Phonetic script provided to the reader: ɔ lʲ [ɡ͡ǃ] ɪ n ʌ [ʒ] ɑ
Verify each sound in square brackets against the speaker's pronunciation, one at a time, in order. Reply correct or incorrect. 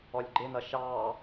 correct, incorrect

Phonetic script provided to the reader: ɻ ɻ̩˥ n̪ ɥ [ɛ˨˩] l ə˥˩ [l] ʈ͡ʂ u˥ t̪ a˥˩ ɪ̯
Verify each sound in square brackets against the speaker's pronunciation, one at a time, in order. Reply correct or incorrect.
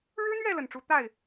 incorrect, incorrect

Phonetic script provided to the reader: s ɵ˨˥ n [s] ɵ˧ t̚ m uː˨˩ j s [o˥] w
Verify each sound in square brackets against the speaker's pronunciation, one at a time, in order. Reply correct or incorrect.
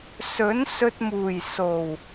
correct, incorrect

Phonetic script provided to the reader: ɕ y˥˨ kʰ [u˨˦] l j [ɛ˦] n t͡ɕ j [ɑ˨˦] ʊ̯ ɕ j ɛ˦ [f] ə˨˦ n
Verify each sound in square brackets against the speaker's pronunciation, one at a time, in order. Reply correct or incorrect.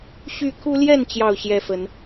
incorrect, incorrect, incorrect, correct

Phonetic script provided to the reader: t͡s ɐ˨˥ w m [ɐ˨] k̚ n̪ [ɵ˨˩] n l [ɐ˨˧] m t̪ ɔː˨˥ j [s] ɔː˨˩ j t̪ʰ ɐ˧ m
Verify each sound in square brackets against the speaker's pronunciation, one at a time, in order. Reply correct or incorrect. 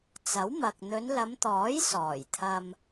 correct, incorrect, correct, correct

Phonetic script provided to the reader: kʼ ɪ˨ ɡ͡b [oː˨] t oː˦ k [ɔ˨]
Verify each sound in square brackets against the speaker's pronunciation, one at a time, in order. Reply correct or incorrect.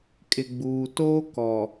incorrect, correct

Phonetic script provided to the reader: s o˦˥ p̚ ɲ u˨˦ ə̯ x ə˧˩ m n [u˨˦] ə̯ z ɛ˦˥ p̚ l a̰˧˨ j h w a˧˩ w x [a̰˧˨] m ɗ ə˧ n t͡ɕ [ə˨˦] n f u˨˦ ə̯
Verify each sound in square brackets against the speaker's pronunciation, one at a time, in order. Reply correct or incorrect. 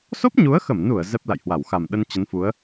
incorrect, incorrect, correct

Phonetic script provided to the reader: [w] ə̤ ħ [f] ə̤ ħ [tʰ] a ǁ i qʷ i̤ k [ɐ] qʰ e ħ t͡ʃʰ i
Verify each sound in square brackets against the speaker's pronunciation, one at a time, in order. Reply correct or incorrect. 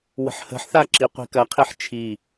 correct, incorrect, incorrect, correct

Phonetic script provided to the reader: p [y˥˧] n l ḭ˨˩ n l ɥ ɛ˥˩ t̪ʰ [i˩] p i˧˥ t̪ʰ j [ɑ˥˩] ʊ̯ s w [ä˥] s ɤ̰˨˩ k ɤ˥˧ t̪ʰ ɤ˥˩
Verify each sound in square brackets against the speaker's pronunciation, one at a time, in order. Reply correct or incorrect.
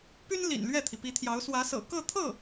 incorrect, correct, incorrect, incorrect

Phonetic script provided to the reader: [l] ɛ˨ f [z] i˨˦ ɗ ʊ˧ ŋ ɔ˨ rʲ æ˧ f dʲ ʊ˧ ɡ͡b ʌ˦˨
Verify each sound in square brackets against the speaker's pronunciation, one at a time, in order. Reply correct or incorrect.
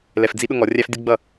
correct, incorrect

